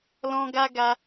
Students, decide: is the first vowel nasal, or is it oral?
nasal